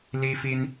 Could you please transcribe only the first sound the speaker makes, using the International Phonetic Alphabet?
l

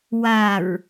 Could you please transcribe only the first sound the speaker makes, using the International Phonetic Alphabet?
w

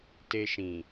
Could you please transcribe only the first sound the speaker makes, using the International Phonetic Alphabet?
t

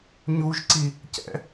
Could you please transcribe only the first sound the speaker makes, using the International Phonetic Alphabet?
ɲ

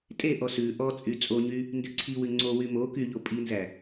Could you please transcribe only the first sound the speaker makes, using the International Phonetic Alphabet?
tʼ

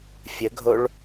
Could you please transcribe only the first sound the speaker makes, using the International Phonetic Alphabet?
fʲ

